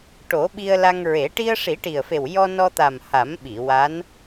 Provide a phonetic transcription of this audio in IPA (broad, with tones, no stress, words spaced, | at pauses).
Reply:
ʈo˨˩˦ɓi˧ə̯la˧ŋɹe˨˩˦ ʈi˧ə̯ʂi˨˩˦ʈi˨˩ə̯fe˨˩w jɔ˧nɔ˧t̪a˨˩m ha˨˩˦mɓi˨˩˨ wa˧˥n